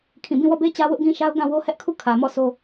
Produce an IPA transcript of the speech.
kʰ ĩ˦˨ b ĩ˦˨ w ɔ˦˨ b e˦ t͡ɕ ä˦ w ʊ˦ ʔ ɡ ĩ˦ ʃ a˦ ʊ̯ ɡ ã˦˨ w o˦ h ɛ˦ ʔ kʰ u˦˨ kʰ ä˨ m ɔ˦˨ sʰ o˦

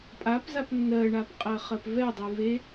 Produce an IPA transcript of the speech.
pʼ a p z a p nː ɜ ɳ a p qʼ ɜ χ ɜ p v ɛ dˤ e v e

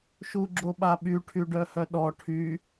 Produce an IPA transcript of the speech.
ʃ u ɡ͡ǁ o ɓ a ɓ y ʈʰ y ɖ œ h œ ɗ ɔ ʈʰ y

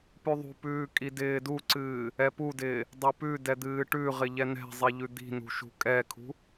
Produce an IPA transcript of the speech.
p ʉ ðˤ ṳ p ʉː kʼ i d ɪː d u ǀ ɨː | ɛ p u d ɪː | dˤ ɛ p ʉ d ɛ d̪ ɨː ʈ ʉ ʁ ɪ ʎ ɛ n ɛ̤ zˤ i ʎ ʉ d̪ i̤ n ṳ ʃ ṳ kʼ ɛ kʰ ṳ

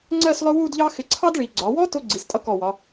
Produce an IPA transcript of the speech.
ŋ͡ǀ ɜ˥˧ s lˠ ʊ˥ w u˥˧ d ʎ ɑ˥ x ɪ˧˩ ǀʰ ɑ˥ d ɭ i˩˧ ɡ͡ǀ ɒ˩˧ w ɔ˥ t ʊ˥ ɡ͡ǀ i˩˧ s tʼ ʌ˥ k ɔ˧˩ w ɒ˩˧

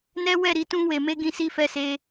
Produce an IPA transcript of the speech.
n ɛ˦ w ɛ˦˨ ɾ i˧ t ũ˧ w e˨ m e˧ ɡ ĩ˧ s i˦ f ɛ˦ s e˦

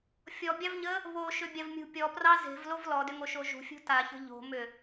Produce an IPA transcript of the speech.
fʲ ɔ bʲ ɑ v ɲ ə | β o ʃ ʏ bʲ a v mʲ ṳ pʲ ɔ p r ɑ z e̤ v l o v l ɔ d ʏ ŋ o ʃ o ʒ ṳ fʲ ṳ t a ç ə̤ ʎ o̤ m ʏ

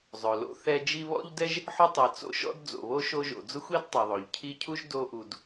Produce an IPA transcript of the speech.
zˤ ʊ˩ l o̰˦ θ ɛ˦ d͡ʒ i˦ β ɔ̰˥ ʎ d ɛ˥ ʒ | ħ ʊ˦ tˤ i˩ t͡s o̰˦ ʃ ɔ̰˥ d d͡z o̰˩ β o˥ ʃ o˦ ʒ o̰˩ d͡z ʊ˥ xʷ i˥ d tˤ ɛ˩ ðˤ o˩ ʎ cʰ i˦ cʰ u˥ ʒ d o˦ ʔ u˨ d

